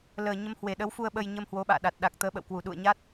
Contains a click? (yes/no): no